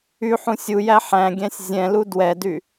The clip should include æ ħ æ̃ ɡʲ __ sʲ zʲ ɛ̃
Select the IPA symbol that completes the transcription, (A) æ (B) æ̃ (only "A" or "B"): B